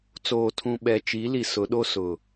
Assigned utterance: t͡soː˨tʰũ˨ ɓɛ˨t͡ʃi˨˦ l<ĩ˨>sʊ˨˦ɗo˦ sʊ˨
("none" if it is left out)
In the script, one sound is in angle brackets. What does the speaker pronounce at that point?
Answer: i˨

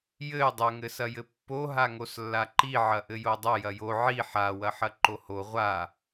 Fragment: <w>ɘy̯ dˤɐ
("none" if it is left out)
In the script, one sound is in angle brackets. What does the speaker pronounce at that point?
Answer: j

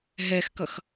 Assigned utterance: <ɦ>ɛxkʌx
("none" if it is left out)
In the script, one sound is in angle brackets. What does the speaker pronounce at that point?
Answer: ɦ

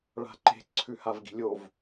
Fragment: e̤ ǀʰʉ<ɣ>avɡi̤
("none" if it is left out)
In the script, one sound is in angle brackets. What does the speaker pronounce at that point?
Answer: h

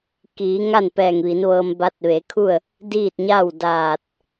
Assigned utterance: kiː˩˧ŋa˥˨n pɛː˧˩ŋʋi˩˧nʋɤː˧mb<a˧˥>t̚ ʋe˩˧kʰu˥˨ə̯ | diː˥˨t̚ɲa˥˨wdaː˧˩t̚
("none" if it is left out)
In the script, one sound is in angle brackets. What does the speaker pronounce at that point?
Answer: a˧˥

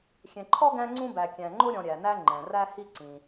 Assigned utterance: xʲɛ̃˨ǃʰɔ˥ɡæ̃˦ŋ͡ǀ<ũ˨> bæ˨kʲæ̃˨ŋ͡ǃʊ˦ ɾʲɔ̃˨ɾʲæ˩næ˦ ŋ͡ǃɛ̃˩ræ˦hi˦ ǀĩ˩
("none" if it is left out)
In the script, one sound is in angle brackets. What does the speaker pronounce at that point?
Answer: ũ˦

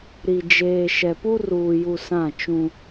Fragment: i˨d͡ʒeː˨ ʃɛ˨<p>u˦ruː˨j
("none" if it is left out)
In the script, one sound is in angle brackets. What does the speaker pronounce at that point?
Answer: p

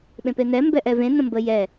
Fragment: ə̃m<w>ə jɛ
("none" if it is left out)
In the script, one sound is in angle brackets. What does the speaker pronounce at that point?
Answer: b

